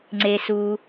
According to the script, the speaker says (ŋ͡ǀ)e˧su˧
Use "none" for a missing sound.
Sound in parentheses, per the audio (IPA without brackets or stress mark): ŋ͡ǀ